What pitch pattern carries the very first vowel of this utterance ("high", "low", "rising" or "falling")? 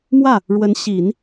falling